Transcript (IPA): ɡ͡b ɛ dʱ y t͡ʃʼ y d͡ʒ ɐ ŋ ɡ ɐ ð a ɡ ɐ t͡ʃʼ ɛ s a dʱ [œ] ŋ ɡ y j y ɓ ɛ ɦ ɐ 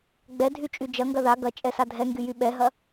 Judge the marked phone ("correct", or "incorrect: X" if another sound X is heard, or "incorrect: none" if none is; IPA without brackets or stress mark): incorrect: ɛ